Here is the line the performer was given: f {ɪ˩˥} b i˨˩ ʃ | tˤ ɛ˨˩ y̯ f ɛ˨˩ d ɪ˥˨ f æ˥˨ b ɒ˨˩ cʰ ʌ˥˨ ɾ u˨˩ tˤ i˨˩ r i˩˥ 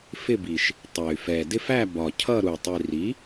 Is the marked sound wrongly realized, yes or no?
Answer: yes